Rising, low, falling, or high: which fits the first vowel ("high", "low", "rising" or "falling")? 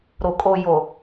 low